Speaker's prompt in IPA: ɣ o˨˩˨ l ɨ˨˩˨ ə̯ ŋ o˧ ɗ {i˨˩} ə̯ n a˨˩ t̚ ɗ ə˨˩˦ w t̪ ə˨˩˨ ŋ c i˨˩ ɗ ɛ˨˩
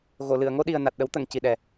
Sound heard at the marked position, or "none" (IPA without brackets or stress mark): i˨˩